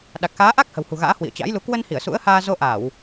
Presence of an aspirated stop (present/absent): absent